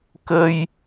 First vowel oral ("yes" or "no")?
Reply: yes